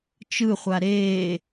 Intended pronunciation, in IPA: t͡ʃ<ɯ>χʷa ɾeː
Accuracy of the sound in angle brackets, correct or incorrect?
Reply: correct